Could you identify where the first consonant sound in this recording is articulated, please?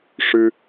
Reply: retroflex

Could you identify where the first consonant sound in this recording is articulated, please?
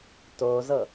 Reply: alveolar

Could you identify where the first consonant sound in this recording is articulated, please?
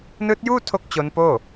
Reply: alveolar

